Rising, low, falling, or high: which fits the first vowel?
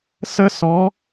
high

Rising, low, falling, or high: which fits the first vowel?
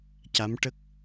rising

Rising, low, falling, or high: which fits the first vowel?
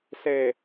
low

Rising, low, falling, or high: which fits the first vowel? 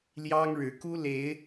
high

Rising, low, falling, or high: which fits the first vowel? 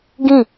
falling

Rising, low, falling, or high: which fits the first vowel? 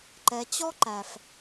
low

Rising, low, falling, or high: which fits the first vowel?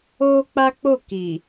high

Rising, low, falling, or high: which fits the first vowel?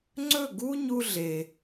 falling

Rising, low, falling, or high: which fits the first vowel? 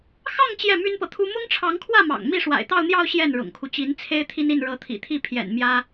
falling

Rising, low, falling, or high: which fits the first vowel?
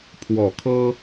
low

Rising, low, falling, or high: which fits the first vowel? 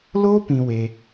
high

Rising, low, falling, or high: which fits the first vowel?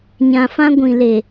low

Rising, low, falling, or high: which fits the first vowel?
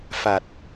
low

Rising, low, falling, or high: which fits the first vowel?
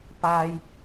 high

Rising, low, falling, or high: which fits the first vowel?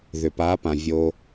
low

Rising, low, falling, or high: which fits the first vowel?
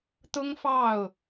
high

